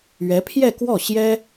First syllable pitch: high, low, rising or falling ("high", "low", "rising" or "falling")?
rising